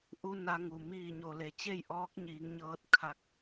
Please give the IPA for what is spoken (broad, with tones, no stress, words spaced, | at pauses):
ʔu˧ na˧ŋu˩ miː˧˩ɲo˩le˩˧ t͡ɕe˥˨jʔɔː˧˥k̚ɲiː˩˧ŋɲɤː˧t̚ kʰa˧k̚